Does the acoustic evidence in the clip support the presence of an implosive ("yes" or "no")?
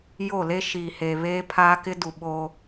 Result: yes